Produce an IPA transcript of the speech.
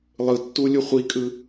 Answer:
lˠɯtːulʲu χʷikʼɯ

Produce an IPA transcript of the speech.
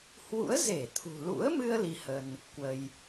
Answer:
hwṵ˧˥ə̯ze˧˩t̪ʰṳ˨˩ lṵ˧˥ə̯mɨ˧ə̯ li˧hə˧n | kwə˧j

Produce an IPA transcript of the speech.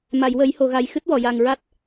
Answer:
ma˨˩˨jwə˨˩˦jho˨˩˨ɣa˨˩j xɨ˦˥t̚wɔ˨˩˨ja˨˩ŋɹa˦˥t̚

